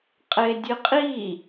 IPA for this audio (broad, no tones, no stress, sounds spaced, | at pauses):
qʼ e dʲ ɨ qʼ i